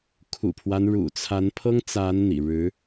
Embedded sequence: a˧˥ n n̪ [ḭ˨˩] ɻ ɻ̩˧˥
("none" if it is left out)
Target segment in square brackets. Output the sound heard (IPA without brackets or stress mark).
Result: ḭ˨˩